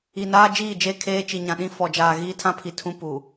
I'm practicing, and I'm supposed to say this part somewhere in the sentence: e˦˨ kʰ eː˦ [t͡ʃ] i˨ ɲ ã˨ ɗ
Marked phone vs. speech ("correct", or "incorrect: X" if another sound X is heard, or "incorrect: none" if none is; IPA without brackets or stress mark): correct